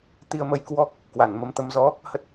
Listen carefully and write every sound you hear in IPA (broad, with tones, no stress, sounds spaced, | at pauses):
t̪ i˧ ə̯ m ə˧ j k w ɔ˦˥ k̚ | k w a˧˩ n m ə˨˦ m t̪ ə˧ m z ɔ˨˦ | h ə˦˥ t̚